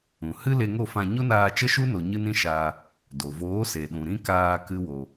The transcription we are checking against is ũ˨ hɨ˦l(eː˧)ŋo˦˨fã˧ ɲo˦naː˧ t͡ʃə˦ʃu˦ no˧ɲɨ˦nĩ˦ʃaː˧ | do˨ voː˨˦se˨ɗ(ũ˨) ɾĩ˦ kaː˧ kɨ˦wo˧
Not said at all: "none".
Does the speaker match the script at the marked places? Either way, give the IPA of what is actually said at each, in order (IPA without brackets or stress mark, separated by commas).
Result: e˧, ũ˨